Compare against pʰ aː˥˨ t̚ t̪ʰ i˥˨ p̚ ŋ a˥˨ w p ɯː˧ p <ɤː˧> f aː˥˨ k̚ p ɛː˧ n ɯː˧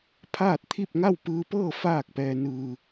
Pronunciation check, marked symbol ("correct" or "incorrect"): incorrect